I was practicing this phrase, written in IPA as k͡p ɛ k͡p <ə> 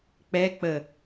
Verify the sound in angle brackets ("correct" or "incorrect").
correct